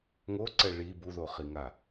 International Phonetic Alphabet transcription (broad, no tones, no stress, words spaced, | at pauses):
ŋoǀɛ ɭi buðoχiŋa